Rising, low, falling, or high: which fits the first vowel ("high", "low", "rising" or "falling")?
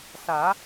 rising